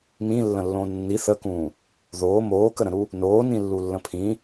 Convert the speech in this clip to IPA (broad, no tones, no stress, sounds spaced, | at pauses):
m ĩ lː ə̃ lː õː nː i θ ə k ũː | ð oː m oː k ə ɾ ə̃ ɾ u | n oː n ĩ lː u lː ə̃ pʰ ĩ